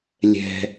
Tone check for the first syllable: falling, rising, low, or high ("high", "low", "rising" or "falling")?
high